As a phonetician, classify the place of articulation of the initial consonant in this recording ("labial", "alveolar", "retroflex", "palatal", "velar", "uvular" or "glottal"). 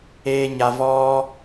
palatal